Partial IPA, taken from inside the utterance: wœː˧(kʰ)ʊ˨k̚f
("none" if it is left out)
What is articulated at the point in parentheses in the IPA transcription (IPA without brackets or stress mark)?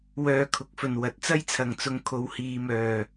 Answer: kʰ